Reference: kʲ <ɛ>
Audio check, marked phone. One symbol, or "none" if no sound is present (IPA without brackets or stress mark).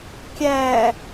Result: æ